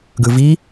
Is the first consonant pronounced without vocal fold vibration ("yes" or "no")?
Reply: no